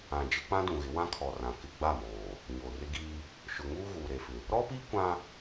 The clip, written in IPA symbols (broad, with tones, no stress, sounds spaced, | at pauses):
ã˨ d͡ʒ ɪ˦ k͡p ã˦ d ũ˨ ɣ ɪ˨˦ w ã˦ kʰ ɔ˨ r ã˨ k ɪ˦ ɡ͡b a˦˨ m oː˨ | ɲ oː˨ r ɪ˦ ɡ iː˦ | ʃ ʊ˨ ŋ uː˦ ɣ uː˨ ɾ e˨ f ɪ˨ | ɾ ɔ˦ p iː˦ kʷ ã˦